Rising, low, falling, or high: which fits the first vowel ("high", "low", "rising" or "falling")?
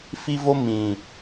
high